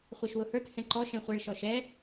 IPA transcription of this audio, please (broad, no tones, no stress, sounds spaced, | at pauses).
χʷ ɑ ʃ w ʊ h ə˞ t h ɛ̃ ǃ ɔ ʃ ɛ̃ χʷ ɛ ɭ ʃ ɔ ʃ ɛ